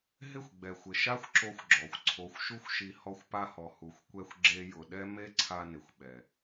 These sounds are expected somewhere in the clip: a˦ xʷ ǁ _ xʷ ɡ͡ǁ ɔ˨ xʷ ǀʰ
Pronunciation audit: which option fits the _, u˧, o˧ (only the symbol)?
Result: o˧